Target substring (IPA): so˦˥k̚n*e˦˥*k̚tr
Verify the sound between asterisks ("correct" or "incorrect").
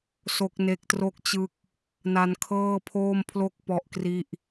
correct